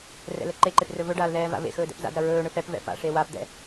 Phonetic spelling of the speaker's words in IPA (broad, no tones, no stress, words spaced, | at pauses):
rɛ̰lɛǃeǃep rɵvɵɖaːl ðɛːva̰vḛxɵː dɛ̰pza̰dɾɐ ɹɵːɳɵ fɛp vɛ̰pa̰ʂe wapd̪ɛ̰